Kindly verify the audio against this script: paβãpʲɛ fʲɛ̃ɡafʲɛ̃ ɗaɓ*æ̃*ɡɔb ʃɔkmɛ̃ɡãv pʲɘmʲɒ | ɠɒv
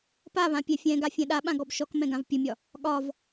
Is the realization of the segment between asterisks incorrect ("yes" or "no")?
yes